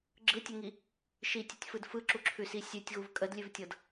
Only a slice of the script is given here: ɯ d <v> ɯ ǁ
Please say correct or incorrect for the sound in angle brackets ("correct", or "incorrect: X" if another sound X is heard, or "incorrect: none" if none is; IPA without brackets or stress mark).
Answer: incorrect: f